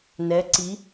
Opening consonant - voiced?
yes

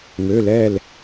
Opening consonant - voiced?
yes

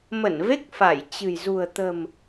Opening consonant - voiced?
yes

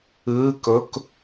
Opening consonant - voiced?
no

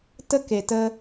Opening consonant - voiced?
no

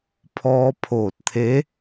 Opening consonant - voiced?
no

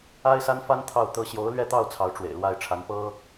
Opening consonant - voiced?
no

